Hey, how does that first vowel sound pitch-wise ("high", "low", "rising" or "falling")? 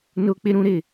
high